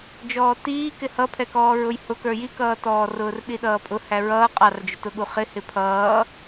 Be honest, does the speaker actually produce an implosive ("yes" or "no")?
yes